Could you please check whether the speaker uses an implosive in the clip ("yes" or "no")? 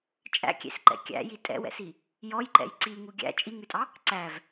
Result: no